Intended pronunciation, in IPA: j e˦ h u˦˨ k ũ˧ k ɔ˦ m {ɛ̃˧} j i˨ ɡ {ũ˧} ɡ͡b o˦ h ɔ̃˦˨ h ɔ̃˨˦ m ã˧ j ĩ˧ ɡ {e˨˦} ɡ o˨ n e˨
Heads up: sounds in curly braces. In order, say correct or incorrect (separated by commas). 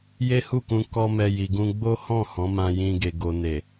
incorrect, correct, incorrect